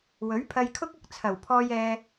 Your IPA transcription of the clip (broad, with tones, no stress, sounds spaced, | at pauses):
w ɵ˨˥ ɥ pʰ ɐ˧ j kʰ ʊ˥ k̚ ɐ˥ k̚ t͡sʰ ɐ˨˩ w pʰ ɔː˨ j ɛː˨